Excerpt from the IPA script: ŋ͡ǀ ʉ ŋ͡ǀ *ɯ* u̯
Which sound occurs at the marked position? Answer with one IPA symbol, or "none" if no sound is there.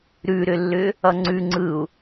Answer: ɯ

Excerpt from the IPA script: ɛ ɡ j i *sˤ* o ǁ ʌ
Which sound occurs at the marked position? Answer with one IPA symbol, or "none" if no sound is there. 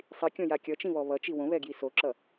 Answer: s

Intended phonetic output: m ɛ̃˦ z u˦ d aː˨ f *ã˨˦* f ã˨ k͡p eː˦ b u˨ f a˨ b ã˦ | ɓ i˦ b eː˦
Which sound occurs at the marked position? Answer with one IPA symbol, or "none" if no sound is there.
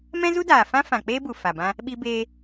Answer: ã˦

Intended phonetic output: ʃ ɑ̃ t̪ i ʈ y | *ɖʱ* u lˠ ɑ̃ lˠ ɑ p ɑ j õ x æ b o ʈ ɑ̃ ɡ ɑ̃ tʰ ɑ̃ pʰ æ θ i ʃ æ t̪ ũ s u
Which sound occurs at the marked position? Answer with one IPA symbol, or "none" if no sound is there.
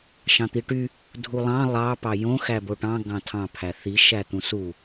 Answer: dʱ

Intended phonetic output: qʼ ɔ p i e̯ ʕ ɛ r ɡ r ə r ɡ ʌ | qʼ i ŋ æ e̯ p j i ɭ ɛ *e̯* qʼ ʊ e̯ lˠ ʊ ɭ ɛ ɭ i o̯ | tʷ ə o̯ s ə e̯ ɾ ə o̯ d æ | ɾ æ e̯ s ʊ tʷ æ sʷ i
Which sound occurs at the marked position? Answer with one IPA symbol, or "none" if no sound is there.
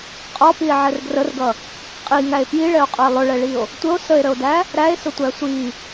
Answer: o̯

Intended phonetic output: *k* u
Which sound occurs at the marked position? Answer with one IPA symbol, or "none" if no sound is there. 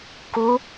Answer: k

